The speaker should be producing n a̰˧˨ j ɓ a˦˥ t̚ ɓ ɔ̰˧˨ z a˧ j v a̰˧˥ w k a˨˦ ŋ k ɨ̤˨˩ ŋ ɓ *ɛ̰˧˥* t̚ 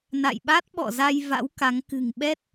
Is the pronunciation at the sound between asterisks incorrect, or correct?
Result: incorrect